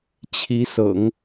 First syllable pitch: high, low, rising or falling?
rising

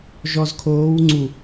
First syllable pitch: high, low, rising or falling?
low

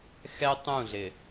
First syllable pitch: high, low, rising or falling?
high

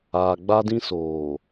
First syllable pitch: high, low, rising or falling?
low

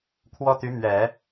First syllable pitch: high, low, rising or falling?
high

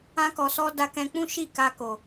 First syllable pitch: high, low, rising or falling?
high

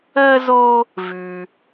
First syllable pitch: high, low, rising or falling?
high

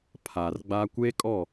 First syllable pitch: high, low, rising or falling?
low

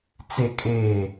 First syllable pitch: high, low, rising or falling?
low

